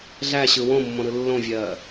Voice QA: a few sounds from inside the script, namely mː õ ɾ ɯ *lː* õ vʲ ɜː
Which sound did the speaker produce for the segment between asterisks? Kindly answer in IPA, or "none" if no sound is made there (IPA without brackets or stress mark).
lː